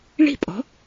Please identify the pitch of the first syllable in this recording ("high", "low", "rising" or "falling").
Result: falling